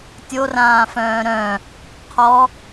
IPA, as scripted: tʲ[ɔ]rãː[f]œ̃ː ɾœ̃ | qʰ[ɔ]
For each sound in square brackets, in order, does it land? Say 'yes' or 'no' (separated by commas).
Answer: no, yes, yes